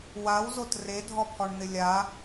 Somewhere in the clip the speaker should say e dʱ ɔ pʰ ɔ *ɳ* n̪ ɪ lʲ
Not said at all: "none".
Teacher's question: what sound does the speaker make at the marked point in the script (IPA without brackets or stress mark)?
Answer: ɳ